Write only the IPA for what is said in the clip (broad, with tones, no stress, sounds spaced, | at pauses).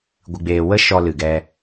ɡʷ ɨ˨ ɡ͡b eː˨ w ə˦ ʃ ɔ˧ l ɨ˨ ɡ ɛ˧